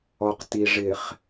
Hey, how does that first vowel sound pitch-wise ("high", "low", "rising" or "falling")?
low